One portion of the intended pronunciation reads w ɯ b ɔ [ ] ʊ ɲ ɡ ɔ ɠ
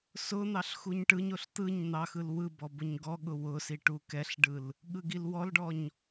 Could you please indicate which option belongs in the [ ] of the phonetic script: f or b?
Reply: b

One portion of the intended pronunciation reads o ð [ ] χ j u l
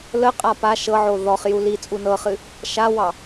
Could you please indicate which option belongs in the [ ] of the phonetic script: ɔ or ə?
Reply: ɔ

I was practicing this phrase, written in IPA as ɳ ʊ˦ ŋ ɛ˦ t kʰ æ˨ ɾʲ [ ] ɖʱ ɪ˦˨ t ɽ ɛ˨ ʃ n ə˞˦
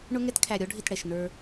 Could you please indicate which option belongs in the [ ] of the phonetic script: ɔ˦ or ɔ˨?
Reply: ɔ˦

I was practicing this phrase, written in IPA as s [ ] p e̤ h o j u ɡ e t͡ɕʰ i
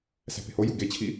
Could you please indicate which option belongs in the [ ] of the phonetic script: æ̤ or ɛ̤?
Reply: æ̤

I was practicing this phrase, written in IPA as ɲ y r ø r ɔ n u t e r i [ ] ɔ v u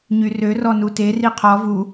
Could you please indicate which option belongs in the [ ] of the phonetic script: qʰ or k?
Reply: qʰ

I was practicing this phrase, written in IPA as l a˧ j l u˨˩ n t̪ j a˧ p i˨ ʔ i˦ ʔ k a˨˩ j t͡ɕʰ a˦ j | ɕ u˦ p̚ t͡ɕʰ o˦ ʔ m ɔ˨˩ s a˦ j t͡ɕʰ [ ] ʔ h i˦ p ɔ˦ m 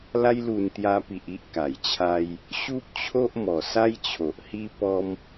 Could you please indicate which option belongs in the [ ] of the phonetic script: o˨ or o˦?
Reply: o˨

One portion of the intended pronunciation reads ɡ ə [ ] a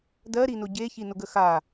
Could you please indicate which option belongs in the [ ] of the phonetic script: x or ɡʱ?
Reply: x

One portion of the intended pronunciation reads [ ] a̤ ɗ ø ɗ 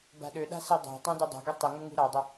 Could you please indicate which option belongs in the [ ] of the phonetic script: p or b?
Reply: b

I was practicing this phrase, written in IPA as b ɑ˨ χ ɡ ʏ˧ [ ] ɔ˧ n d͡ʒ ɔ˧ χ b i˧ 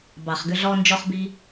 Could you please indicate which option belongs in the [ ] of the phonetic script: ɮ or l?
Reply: ɮ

